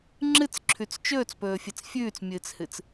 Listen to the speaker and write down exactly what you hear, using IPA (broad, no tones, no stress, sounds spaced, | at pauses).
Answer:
ŋ͡ǁ ɨ t͡s ǁʰ ʉ t͡s t͡ʃ ɵː t͡s p ɵː fʲ e t͡s fʲ ʉː t͡s mʲ ɨː t͡s h ɨ t͡s